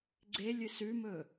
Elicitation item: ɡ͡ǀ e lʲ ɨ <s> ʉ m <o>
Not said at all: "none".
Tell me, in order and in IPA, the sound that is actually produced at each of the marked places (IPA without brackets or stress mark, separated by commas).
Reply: s, ɵ